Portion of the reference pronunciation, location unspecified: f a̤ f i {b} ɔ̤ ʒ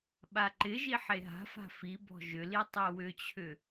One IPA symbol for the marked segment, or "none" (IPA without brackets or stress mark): b